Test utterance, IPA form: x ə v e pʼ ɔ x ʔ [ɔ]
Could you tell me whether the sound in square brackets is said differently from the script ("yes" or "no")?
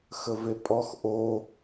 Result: yes